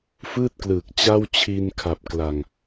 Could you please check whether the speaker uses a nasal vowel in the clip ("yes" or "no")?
no